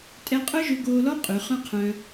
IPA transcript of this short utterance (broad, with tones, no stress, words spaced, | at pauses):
tʼɛ˧qʼœ˦ʒø˧ ɡoː˧lɔ˦qʼʉ˨ χœ̃˦qʰœ̃˧